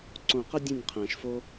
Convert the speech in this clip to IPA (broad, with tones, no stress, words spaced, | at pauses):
ǀõ˨qə˧ dʲẽ˦˨nʲqʰɛ̃ː˨ʃfo˦